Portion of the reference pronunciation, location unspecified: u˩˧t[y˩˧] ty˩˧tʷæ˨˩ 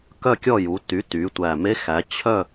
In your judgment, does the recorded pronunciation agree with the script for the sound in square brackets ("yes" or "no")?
no